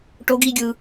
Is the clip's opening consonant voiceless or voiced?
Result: voiceless